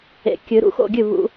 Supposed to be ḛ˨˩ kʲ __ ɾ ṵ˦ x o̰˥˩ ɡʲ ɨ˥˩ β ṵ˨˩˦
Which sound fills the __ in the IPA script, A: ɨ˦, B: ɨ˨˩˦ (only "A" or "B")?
B